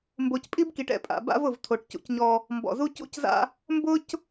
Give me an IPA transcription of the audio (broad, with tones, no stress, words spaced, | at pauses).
mbo˨cpʼi˦bki˨ʈɛ̰˦˨ pʼa̰˨ ba̰˦vʊ˨v tʰo˨ʈ cṵ˦cɲɔ˦ | mbɔ̰˨zu˦ cṵ˦cza̰˦ | mbʊ˦c